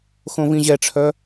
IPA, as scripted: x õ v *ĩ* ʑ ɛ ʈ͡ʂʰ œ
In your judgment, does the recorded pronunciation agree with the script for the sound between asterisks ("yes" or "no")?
yes